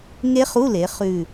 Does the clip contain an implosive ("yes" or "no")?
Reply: no